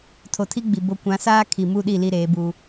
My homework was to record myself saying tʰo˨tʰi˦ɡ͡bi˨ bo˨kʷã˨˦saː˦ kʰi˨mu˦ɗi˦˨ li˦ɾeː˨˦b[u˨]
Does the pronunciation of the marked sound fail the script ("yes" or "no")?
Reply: yes